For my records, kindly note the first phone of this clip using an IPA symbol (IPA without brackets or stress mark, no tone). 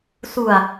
s